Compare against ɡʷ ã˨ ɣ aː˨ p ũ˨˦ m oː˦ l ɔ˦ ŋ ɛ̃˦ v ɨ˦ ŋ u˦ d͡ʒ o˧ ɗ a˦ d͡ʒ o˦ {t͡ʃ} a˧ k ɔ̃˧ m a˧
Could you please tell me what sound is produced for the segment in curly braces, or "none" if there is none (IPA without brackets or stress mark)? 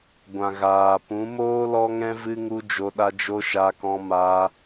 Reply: ʃ